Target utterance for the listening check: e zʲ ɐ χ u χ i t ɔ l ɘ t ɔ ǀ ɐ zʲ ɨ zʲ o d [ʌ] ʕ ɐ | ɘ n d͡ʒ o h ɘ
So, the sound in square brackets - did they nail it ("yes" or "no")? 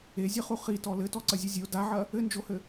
no